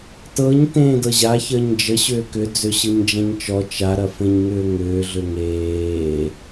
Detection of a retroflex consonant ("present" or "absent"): absent